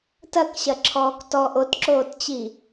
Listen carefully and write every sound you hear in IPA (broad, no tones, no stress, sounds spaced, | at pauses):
t ɐ k ɕ ɐ ǁʰ ɔː k t ɔ ʔ o t ǁ oː t t͡ɕ i